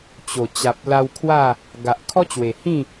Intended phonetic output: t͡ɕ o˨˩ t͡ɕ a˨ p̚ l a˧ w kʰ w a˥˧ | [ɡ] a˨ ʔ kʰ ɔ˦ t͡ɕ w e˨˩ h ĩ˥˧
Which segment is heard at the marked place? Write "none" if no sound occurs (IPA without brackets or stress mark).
ɡ